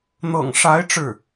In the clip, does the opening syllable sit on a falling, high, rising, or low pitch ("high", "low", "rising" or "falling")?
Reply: low